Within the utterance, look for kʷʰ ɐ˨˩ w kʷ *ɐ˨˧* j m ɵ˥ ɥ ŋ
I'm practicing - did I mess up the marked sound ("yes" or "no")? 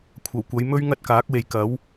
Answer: no